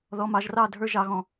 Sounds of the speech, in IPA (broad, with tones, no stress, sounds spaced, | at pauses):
ð ɔ˨ m ɑ˨ ʒ r ɑ˦˨ dʱ ə˞˧ ʒ ɑ˨ ɣ ɔ̃˨